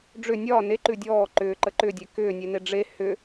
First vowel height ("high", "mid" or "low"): high